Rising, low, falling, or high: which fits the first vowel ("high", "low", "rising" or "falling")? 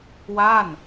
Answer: falling